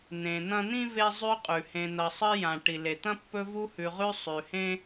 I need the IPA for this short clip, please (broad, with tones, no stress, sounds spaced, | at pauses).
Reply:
n̪ ẽ˨ n̪ ɐ̃˥ n̪ ĩ˥ v e˥ zˤ ʉ˦ qʼ ʉ˩ h ẽ˨ n̪ ɐ˨ sˤ ɨ˦ j ã˩ ʈ i˩ l e˩ t̪ ɐ̃˥ pː ɵ˦ v u˦ h ʉ˨ ʁ ʉ˦ sˤ ʉ˩ h ẽ˥